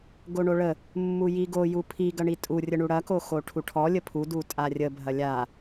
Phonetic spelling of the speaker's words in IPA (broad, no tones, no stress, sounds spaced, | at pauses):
ɡ o ɳ o ɭ ə | mː u j i ɡ o j u pʰ i ɡ ɐ ɳ i tʼ u rʲ ə ɳ u ɽ ɐ k o x o ʈʰ u ʈʰ ɔ lʲ ə pʰ u d u tʼ a rʲ ə bʱ ɐ lʲ a